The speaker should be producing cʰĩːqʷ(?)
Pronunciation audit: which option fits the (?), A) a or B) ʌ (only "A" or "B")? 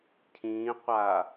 A